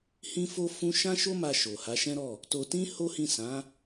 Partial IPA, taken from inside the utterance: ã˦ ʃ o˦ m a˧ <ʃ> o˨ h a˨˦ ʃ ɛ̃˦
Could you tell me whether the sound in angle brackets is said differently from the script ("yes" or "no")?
no